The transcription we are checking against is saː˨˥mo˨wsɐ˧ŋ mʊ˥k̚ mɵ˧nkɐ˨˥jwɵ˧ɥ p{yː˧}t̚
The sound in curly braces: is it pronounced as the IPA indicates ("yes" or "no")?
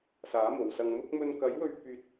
yes